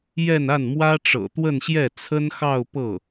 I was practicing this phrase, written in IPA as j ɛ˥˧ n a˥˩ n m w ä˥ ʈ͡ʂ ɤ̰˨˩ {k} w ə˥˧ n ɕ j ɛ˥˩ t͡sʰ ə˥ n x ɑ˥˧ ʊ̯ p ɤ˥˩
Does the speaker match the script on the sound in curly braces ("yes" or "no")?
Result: no